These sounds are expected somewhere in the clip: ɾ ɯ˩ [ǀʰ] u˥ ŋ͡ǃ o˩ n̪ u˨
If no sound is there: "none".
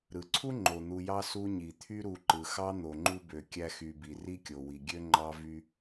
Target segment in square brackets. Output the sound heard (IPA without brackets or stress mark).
ǀʰ